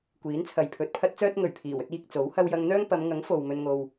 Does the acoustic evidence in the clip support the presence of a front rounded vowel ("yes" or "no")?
yes